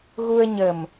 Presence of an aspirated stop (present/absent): absent